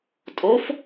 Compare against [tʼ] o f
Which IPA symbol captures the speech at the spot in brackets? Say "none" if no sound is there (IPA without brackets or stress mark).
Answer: tʼ